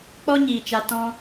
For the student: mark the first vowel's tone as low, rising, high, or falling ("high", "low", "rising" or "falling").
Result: high